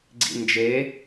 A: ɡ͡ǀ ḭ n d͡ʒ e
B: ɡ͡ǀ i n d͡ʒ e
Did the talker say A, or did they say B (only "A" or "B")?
A